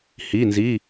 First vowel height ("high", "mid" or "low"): high